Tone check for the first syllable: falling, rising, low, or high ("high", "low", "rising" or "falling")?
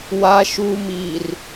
high